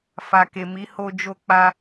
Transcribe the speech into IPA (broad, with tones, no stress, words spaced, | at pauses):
fa˨ke˨mi˨˦ ho˧d͡ʒo˧k͡pa˧